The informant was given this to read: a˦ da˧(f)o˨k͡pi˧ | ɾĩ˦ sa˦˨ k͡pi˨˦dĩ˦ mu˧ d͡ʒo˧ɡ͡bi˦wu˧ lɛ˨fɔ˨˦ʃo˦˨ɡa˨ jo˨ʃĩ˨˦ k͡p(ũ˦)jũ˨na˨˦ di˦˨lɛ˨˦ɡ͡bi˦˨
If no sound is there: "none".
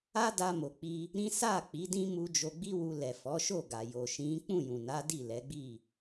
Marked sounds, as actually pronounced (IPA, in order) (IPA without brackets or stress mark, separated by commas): m, ũ˦˨